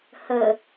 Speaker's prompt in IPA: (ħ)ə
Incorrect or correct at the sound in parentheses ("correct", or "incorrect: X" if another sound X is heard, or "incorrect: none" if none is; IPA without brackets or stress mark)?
incorrect: h